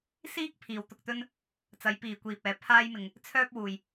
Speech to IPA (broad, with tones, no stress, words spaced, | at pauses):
siː˥k̚pʰiː˨w t̪ʊ˨k̚t̪ɵ˧n | t͡sɐ˨˧jpiː˨kʷiː˨p̚ɛː˨˧ pʰaː˧jmɪ˨ŋ | t͡sʰœː˥p̚ wuː˨j